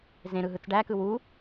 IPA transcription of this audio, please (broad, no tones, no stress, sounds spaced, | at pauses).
z ẽ ɾ ɯ ɦ ɯ t͡s ɖ æ k ɯ w u